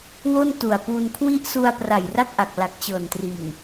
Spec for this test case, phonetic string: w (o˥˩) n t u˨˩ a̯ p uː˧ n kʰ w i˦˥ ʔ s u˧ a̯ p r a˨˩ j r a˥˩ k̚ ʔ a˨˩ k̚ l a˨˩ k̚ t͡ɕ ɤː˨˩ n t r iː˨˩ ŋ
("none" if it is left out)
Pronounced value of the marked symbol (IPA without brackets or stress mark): o˥˩